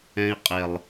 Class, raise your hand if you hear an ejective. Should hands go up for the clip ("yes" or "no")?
yes